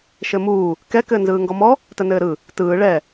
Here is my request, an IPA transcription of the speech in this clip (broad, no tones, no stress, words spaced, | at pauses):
ʃɘmuː | kɛ kɘːnzɯːŋɡɔmɔ | tənɘːɾɯ | tɯː ɭɛ